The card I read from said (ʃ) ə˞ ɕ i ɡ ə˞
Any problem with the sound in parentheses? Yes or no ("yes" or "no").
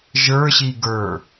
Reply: yes